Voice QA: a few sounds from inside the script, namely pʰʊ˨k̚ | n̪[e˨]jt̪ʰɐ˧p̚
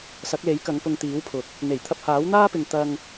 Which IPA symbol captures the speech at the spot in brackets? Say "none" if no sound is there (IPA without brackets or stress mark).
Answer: e˨˩